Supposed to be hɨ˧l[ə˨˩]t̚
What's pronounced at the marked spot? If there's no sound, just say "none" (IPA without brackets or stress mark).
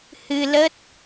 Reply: ə˦˥